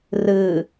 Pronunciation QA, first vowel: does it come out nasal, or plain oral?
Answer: oral